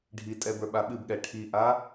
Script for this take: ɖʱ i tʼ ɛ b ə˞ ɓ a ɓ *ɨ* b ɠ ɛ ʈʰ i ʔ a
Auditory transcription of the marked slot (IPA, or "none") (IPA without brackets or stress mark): ɨ